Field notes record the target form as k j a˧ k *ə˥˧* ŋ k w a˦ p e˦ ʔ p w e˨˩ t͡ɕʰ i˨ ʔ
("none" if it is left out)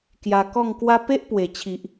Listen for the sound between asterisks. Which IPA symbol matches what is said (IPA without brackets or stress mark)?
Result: ɔ˥˧